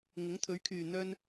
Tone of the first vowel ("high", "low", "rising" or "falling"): rising